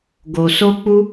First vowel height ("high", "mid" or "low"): mid